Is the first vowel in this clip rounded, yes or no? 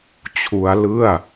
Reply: yes